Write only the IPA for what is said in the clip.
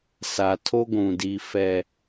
sa˨tʰo˦ɡʷũ˨ di˦ fɛ˦

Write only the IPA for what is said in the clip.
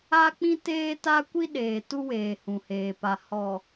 a˦k͡pĩ˦teː˦ ta˦kʷi˦ ɗeː˨tu˦weː˨ hũ˨heː˨pa˨ hɔ˨

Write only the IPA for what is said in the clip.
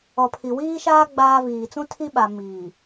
ɔ˨pʰi˨ wiː˦ʃaː˦ ɡ͡baː˦viː˨ t͡sũ˦tʰi˦ɓa˨ miː˨

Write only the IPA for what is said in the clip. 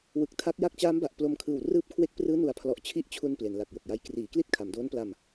wɯ˨˩k̚tʰa˦˥k̚ ja˦˥k̚t͡ɕaː˦˥mba˨˩ʔ plo˧mkʰɯː˨˩w rɯː˦˥p̚kʰwe˦˥k̚prɯː˦˥ nu˨˩a̯pʰlɔ˨˩ʔ t͡ɕʰi˦˥ʔt͡ɕʰu˧n ple˩˦nla˨˩k̚jo˨˩k̚ja˦˥j kriː˩˦kli˥˩t̚ kʰa˩˦mdoː˦˥npla˧m

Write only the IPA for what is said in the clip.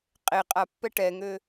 qʼe qʼapːɛ ʈɛŋø

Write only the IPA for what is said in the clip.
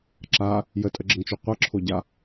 ǁa | jətʼəɡ͡ǁəŋt͡ʃo qʷʌǁʰoɟa

